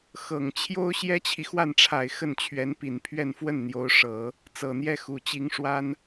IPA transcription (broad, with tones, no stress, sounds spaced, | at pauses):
x ɤ˨˩ ŋ t͡ɕʰ j o˥ ʊ̯ ɕ j ɛ˥ t͡ɕʰ i˨ x w a˥˩ n ʈ͡ʂʰ a˨˩ ɪ̯ x ə˥˩ n t͡ɕʰ ɥ ɛ˧˥ n p i˨˩ n pʰ ɥ ɛ˥˧ n f w ə˥˩ n n̪ j o˧˥ ʊ̯ ʂ ɤ˨˩˦ | t͡s ɤ˨˩ n̪ j ɛ˥˩ x u˨˩ t͡ɕ i˧˥ ŋ ʂ w a˥ n